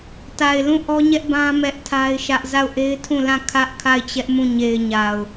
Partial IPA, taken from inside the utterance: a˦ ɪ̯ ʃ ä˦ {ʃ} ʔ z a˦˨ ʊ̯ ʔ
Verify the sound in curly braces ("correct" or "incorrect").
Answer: incorrect